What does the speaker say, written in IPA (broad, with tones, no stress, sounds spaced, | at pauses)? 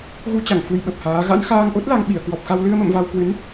ɣ u˧ t͡ɕ a˧˩ ŋ f u˧ j ɓ ə˨˩ p̚ h aː˨˦ ɣ a̰˧˥ n x aː˧ ŋ ʔ o˦˥ t̚ l a˧ ŋ ɓ i˧˩ ə̯ k w ɔ˨˩ p̚ x a˧ w l ɨ˧ ə̯ m ə̰˧˨ m v a˧ w k w ɨ˨˦ n